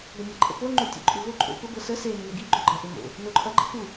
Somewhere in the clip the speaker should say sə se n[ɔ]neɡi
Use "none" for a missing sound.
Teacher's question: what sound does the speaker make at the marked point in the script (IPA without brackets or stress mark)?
ə